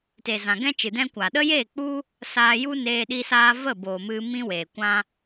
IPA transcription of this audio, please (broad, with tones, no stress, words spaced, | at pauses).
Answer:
te˨zã˨ɡɛ̃˦t͡ʃɨ˨ dɛ̃˦ kʷaː˨ɗə˦jeː˦˨k͡pu˦ | saː˧ju˦neː˧ ɗi˧saː˧ və˦˨boː˨mɨ˧ mĩ˦weː˨kʷã˦